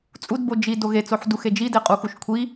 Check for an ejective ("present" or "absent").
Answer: present